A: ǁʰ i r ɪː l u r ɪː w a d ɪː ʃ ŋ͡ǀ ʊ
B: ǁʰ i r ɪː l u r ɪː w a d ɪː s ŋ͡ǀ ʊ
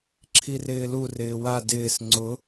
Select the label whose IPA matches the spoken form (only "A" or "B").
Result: B